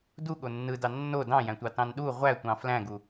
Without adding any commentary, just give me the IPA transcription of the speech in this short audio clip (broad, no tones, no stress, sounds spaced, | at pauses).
d u ɠ o nː ɯ d ɑ nː o d ɑ̃ j æ̃ tʷ ɑ t ɑ̃ n ɗ u ʁʷ æ tʷ ɑ̃ f l æ̃ ɡ u